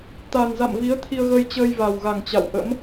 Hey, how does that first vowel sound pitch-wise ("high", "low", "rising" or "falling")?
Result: low